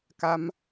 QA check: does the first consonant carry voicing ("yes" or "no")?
no